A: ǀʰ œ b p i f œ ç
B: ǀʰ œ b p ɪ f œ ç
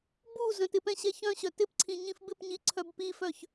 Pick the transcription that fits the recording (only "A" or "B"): A